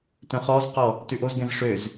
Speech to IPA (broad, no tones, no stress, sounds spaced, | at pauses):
t œ̃ χ ɔ z q ɔ | t ʉ ʔ o z ɡ ɛ̃ z ʂ ø z